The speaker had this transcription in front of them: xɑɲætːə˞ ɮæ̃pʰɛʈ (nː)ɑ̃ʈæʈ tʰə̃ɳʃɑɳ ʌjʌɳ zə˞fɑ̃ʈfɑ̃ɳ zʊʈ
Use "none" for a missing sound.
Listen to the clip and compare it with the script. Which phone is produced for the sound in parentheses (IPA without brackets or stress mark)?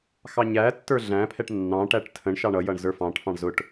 nː